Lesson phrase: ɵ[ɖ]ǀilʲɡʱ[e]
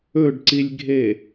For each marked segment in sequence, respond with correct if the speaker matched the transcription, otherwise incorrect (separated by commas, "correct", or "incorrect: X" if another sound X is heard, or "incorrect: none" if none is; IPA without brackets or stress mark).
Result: correct, correct